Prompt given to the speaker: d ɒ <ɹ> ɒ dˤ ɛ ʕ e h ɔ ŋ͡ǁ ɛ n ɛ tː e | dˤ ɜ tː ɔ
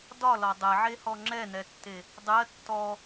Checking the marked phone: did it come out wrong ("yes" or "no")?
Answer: yes